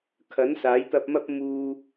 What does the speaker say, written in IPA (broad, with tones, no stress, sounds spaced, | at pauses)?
kʰ ɐ˨˥ n s aː˨˥ j t̪ ɐ˧ p̚ m ɐ˥ p̚ m uː˧